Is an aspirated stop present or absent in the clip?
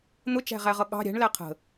present